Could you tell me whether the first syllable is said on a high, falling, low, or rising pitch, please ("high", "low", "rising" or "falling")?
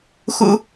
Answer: low